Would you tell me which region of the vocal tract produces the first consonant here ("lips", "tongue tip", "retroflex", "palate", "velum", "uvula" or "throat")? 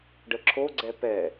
retroflex